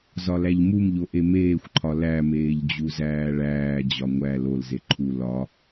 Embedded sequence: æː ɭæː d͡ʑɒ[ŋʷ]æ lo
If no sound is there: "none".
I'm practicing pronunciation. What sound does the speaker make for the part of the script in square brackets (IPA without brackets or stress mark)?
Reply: ŋʷ